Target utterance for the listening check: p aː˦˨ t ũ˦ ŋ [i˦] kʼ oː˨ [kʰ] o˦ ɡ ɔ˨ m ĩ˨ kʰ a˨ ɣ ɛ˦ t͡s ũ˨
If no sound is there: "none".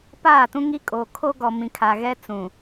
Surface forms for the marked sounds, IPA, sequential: i˦, kʰ

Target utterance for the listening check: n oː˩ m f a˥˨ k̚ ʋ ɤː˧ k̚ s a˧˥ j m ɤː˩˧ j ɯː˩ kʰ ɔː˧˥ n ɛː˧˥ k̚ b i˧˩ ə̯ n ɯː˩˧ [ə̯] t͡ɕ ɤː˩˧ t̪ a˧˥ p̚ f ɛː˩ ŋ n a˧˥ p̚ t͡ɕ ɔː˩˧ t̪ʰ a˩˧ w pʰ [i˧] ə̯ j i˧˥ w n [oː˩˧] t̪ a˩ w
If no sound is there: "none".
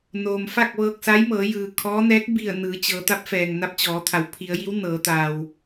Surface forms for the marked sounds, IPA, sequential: none, i˩˧, ɤː˩˧

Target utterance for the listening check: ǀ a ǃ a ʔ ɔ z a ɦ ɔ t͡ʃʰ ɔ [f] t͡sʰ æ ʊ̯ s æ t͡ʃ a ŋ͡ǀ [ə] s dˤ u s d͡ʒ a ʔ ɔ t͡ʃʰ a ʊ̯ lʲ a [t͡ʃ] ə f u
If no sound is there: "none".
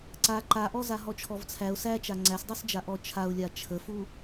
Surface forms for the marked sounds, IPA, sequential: v, æ, t͡ʃʰ

